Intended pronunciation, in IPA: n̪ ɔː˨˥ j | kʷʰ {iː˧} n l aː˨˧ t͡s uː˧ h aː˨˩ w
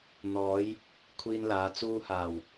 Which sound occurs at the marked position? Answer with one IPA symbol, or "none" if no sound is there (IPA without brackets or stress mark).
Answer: iː˧